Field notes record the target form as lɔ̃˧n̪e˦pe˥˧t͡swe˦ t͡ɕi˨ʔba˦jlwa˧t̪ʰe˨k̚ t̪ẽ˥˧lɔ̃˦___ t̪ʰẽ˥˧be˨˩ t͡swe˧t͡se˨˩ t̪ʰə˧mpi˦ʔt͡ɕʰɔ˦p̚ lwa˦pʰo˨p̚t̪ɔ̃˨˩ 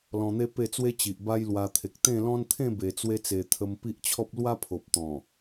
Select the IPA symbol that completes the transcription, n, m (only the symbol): n